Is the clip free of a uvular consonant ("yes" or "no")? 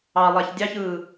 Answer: yes